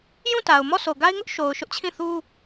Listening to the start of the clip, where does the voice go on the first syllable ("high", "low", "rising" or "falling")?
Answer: falling